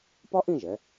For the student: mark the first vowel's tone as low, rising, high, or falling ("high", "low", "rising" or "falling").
high